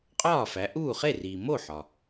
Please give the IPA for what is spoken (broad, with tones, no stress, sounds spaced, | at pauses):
qʼ ɒː˥˩ f æ˩˥ ʔ uː˥˩ χ e˥˩ r iː˩ m o˥˩ ħ ɒ˩